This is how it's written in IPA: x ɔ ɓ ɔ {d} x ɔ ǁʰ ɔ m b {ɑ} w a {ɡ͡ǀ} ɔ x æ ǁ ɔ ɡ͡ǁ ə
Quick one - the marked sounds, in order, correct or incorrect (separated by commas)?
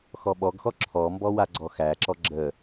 incorrect, incorrect, correct